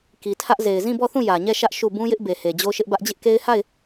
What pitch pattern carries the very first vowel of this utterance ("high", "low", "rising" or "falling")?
low